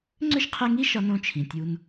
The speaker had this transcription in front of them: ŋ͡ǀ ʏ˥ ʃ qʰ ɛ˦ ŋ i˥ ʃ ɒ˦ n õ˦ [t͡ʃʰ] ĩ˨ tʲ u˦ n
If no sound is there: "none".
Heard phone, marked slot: t͡ʃʰ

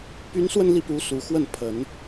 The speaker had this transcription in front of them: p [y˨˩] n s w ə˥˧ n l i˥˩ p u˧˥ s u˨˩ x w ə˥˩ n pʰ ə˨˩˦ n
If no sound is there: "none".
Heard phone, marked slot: y˧˥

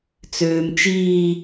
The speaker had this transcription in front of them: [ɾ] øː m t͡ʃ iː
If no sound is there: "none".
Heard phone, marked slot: t͡s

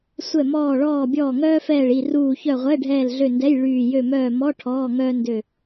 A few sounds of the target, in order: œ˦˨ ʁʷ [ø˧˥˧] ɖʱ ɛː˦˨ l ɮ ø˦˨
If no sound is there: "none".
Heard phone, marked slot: ɛ˧˥˧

